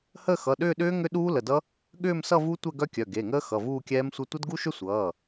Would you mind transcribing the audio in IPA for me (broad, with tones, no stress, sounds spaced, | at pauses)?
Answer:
h əː˥˧ x ʌ˩˧˩ ɗ ʏː˥˧ ɗ ʏː˦˥ ŋ ʏ˦˥ ɗ uː˦˥ l ə˩˧˩ d ʌ˦˥ | ɠ ʏː˥˧ m s ʌ˥˧ v u˦˥ tʷ ɛ˥˧ ɡ œ˦˥ kʲ œ˩˧˩ ɡ e˩˧˩ ŋ əː˦˥ x ʌ˩˧˩ v uː˥˧ kʲ ɛː˦˥ m sʷ ʌ˦˥ tʷ ʌ˦˥ d ɡ u˦˥ ʃ ʏ˦˥ sʷ ʌː˩˧˩